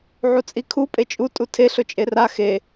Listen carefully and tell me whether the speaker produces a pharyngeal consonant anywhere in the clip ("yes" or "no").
yes